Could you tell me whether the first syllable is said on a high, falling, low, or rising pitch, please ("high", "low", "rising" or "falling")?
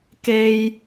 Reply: low